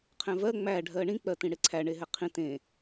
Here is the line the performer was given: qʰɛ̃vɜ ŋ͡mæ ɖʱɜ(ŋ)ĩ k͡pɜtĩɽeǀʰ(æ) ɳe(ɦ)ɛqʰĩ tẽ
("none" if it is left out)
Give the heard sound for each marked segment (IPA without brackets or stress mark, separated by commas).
ɳ, æ, ɦ